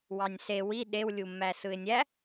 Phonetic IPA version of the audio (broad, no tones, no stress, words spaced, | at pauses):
wɑnʲse wi ɗew lʲumːæsɯɪ̯nʲæ